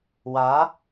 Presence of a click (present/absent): absent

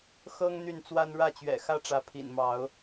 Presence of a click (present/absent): absent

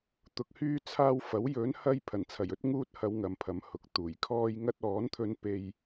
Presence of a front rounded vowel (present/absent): present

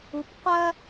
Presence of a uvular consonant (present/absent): present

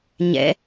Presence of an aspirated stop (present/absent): absent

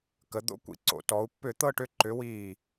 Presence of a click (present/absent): present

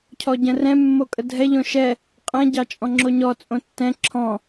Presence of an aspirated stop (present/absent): present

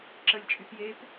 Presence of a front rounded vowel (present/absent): present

